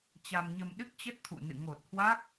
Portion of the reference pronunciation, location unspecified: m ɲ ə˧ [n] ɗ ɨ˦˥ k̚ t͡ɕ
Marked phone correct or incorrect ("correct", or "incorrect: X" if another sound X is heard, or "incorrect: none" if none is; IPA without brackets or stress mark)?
incorrect: m